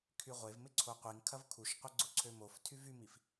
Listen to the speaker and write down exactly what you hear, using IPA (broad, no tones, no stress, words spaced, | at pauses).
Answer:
kʰyʁʷev mɪǀʰoqʷiŋ kʰɐvkʰuʃqʷɐ ɡ͡ǀʊǀʰømof tʰyvymif